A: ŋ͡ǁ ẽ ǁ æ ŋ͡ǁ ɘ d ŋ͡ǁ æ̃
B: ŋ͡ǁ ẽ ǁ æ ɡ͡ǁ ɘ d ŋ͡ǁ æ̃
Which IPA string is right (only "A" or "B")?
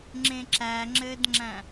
A